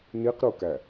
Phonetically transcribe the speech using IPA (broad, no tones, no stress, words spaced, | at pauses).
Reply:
niqɾukæ